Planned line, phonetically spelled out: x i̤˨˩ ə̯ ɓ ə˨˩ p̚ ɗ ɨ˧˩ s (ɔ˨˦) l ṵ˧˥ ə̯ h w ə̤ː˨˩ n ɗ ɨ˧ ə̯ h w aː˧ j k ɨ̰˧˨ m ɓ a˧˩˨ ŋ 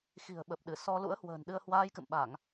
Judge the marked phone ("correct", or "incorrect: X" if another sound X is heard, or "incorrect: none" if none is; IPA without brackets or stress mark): incorrect: ɔ˧